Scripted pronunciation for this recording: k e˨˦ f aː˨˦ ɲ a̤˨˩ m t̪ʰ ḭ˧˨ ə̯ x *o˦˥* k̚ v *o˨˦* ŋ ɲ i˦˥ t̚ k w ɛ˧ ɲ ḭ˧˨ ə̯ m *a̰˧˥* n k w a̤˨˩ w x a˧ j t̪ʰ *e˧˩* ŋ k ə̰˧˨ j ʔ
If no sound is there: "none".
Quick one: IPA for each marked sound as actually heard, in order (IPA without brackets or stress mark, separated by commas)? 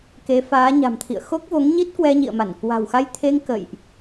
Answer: o˦˥, o˨˦, a˧˩, e˧